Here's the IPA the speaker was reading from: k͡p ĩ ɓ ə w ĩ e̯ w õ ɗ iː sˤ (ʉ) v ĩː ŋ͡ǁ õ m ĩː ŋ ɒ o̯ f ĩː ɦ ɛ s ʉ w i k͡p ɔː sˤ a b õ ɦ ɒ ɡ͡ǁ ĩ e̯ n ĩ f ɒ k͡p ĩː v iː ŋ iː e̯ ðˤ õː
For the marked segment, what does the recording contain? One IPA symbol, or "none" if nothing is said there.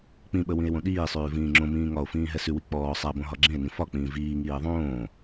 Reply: ʉː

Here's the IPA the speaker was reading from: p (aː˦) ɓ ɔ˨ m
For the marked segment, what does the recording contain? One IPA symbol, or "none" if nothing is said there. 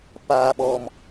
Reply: aː˨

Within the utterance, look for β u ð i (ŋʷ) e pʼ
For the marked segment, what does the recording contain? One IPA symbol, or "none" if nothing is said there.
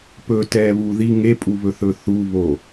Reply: ŋ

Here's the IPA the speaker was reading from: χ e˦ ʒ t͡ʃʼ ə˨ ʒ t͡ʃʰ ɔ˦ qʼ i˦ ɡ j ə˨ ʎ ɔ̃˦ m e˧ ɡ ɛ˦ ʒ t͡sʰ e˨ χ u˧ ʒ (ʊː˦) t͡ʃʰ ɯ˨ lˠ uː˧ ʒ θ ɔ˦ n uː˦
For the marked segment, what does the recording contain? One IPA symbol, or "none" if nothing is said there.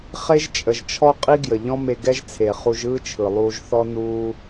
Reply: ɯː˦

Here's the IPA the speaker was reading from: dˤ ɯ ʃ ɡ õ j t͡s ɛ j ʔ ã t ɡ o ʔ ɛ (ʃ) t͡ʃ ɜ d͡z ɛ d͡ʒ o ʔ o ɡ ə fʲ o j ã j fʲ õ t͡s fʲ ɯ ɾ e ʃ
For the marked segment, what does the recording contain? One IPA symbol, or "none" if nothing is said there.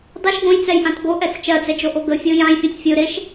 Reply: t͡s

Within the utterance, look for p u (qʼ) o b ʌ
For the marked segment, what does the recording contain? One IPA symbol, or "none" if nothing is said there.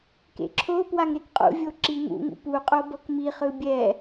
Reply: qʼ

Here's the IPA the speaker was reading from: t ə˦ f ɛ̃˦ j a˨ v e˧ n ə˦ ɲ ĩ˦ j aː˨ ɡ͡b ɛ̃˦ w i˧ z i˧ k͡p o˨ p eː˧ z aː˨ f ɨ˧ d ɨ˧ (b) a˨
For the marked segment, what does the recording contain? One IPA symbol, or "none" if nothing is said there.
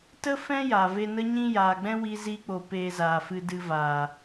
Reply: v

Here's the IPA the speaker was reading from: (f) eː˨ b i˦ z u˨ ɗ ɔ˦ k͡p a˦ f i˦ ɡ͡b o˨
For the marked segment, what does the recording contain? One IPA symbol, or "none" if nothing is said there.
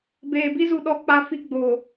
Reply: b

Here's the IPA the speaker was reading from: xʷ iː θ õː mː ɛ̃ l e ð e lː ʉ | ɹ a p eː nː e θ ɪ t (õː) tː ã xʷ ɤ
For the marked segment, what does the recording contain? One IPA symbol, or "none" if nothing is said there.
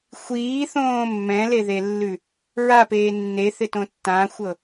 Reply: õ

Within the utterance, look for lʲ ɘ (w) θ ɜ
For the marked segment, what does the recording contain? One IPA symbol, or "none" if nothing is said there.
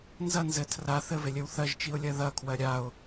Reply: w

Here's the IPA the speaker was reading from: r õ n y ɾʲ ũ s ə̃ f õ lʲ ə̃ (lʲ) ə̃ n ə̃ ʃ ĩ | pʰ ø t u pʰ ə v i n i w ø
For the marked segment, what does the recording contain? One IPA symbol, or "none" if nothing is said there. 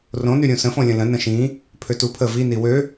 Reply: l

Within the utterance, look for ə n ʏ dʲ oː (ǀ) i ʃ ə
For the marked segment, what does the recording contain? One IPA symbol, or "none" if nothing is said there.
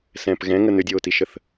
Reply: t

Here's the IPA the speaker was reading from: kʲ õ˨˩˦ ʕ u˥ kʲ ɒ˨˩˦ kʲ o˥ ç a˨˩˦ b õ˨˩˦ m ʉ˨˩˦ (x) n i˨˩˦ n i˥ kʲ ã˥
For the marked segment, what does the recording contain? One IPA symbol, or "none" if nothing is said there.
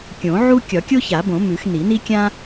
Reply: x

